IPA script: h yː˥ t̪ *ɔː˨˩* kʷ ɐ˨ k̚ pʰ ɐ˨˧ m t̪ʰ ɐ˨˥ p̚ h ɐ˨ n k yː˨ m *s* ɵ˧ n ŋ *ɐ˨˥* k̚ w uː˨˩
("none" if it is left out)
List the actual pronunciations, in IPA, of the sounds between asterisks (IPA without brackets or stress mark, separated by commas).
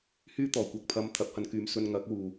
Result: ɔː˨˩, s, ɐ˨˥